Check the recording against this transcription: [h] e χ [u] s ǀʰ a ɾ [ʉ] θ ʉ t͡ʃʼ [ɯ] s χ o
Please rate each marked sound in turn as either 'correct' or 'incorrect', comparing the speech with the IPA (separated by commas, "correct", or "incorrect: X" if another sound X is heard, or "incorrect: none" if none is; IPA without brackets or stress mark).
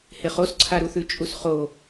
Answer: correct, incorrect: o, incorrect: u, incorrect: u